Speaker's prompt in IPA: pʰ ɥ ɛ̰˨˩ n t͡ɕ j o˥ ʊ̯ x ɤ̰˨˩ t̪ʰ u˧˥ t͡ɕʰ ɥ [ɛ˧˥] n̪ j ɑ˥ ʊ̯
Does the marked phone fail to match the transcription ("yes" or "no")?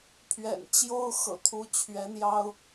no